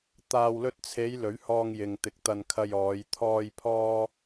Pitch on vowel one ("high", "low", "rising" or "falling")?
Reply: low